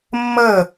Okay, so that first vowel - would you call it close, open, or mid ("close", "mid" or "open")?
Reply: mid